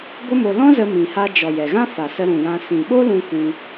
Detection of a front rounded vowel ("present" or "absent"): absent